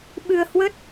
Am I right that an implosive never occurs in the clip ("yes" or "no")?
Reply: no